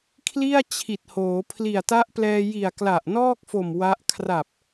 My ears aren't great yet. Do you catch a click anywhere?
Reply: no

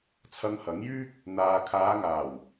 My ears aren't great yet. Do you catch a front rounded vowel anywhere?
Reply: yes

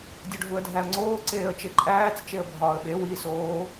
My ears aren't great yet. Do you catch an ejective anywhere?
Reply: yes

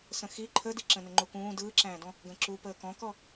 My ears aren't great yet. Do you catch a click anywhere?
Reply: yes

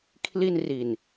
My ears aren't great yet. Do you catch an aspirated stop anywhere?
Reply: yes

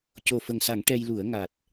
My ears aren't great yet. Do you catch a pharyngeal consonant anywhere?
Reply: no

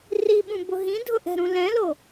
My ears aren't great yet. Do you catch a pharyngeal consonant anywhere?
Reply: no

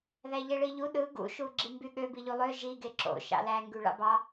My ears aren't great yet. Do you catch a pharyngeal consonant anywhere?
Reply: no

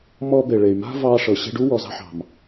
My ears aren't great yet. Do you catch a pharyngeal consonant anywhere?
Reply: yes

